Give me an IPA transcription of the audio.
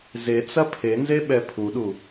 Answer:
zet͡sɐ pʰenzeɓɛ pʰuɗu

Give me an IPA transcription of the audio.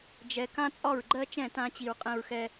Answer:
d͡ʒɛ˨ kã˦t͡sʼɒ˦˨ɹɡ͡ǃɜ˦t͡ʃɛ̃˦˨ tã˧t͡ɕi˨ɹqʼɛ̃˧ɹxɛ˧

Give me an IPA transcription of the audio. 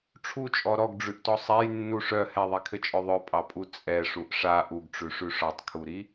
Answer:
ʈ͡ʂʰut͡ʃʼɔ ɾɔɡɖ͡ʐʉʔtɔ sˤɛjnːu ʂœ hɛðˤikʰɘt͡ʃʼœ ðˤœpʼɑpʼu t͡sʼɛʂuʔ ʂa ʔuɡʈ͡ʂʉʂʉ ʂɔtˤkʰuɾi

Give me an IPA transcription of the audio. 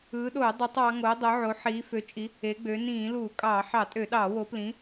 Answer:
ɯː˨˦ɗoː˧˩˧ dˤɯ˨˦tˤɑ˨˦ ŋo˨˦dˤo˨˦ʕo˨˦ ħiː˨˦fø˨˦t͡ʃʼi˨˦ | e˨˦ɡ͡bø˨˦ nĩː˧˩˧luː˧˩˧kʼɑː˧˩˧ ħɑ˧˩˧tʼø˧˩˧ɗɑː˧˩˧wo˨˦ plĩ˨˦

